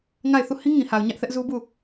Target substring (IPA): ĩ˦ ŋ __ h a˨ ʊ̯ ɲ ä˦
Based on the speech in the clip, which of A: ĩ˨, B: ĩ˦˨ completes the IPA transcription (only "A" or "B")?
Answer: A